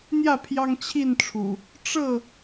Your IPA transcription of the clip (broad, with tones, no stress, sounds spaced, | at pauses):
n̪ j ä˥˨ pʰ j ɑ˦ ŋ t͡ɕʰ i˥˨ n ʈ͡ʂʰ ṵ˨˩ | ʈ͡ʂ ɤ˥˨